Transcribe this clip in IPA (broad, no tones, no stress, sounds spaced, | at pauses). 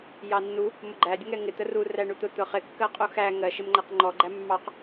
j ɑ nː u | m ʊ ɡ͡ǃ æ dʲ ʊ ŋ ɛ ŋ ɪ t̪ ə r u r æ ɳ u t̪ ʊ t̪ ʊ χ ɪ kː ɜ qʼ u x æ ŋ ɜ ʃ ɪ m ŋ͡ǃ æ q ŋ͡ǃ ɔ ɡ͡ǃ æ mː ɑ q